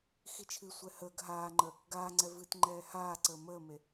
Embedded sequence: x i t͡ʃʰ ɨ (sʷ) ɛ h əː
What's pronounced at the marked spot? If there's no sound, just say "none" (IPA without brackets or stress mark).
sʷ